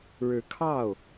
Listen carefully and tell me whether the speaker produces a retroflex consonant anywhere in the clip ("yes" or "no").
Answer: yes